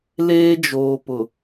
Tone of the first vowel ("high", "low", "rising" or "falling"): high